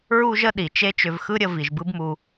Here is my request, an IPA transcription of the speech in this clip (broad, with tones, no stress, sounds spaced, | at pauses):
ɹ u˧ ʒ ə˧ ɗ i˨ t͡ʃ e˦ t͡ʃ ʏ˧ v x ɯ˦ ɾʲ ə˧ v i˨ ʒ b ɯ˦ b m u˧